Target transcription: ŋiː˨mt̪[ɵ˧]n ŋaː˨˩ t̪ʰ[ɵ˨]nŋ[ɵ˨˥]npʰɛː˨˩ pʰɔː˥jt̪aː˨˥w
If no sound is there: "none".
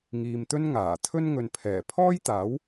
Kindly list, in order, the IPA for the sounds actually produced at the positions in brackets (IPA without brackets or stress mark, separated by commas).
ɵ˥, ɵ˥, ɵ˨